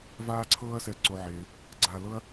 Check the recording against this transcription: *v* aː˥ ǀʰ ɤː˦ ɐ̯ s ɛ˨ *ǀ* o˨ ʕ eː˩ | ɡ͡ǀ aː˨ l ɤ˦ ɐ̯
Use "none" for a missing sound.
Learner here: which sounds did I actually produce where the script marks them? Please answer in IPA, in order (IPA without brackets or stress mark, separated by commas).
v, ǀ